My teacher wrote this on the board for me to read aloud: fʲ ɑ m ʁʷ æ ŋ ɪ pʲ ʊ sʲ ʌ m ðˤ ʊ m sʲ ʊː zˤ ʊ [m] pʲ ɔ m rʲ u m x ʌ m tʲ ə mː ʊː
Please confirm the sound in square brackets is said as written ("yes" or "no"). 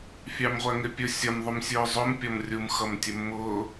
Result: yes